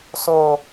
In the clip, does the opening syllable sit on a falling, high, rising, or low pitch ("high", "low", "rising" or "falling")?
low